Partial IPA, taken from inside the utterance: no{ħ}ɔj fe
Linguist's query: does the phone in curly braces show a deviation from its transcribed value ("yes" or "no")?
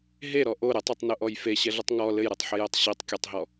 yes